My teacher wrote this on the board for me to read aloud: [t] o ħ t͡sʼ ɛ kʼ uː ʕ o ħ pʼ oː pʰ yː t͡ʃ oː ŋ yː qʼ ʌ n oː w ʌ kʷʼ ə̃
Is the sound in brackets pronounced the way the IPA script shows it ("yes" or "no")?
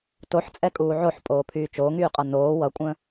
yes